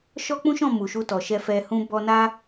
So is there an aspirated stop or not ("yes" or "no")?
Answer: no